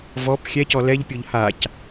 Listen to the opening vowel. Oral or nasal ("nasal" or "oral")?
oral